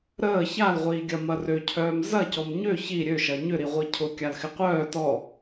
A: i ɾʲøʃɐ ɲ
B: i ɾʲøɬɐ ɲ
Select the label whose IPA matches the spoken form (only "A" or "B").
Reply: A